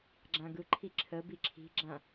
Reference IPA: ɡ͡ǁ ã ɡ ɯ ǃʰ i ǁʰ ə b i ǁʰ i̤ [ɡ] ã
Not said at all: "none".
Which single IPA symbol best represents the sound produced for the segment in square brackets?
ɡ͡ǁ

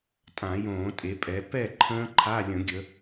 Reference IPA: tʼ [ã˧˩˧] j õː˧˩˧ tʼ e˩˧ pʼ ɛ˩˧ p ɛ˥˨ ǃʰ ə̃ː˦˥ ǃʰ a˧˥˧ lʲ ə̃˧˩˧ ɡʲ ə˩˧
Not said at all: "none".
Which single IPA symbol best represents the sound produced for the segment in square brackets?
ã˧˩˧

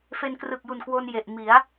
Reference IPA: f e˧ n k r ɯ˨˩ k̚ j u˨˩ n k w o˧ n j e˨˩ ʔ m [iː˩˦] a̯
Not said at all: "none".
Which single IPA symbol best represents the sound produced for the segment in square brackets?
i˩˦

